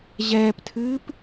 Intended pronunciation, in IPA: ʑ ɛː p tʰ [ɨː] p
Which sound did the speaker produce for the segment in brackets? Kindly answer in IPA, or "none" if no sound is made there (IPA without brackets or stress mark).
ɨː